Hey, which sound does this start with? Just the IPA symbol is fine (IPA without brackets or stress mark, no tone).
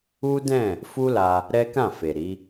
u